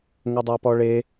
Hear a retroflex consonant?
yes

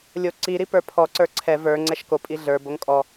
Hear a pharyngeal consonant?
no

